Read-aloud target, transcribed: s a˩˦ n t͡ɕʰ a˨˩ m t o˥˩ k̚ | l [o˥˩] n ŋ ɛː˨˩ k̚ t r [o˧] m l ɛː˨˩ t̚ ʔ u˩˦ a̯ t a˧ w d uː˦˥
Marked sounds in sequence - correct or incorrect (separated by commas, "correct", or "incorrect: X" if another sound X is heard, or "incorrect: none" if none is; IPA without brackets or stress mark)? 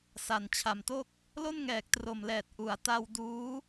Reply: correct, incorrect: o˨˩